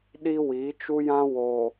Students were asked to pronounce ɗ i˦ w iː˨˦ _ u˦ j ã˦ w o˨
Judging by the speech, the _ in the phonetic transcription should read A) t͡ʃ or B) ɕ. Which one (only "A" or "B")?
A